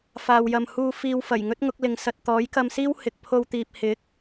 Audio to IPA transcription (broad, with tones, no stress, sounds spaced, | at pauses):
f aː˧ w j ɐ˧ m h uː˧ f iː˨ w f ɐ˨˩ j ŋ ɵ˥ t̚ ŋ ʊ˨˥ k̚ l ɪ˨˧ ŋ s ɐ˧ t̚ t̪ ɔː˨˥ j k ɐ˧ m s iː˥ w h ɪ˨ k̚ pʰ o˧ w t̪ iː˨ p̚ h ɪ˨˥ k̚